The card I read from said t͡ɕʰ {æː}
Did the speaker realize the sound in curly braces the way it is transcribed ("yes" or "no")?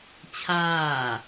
no